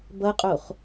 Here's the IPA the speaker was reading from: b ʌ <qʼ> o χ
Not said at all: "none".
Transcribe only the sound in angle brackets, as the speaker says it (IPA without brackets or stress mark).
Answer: qʼ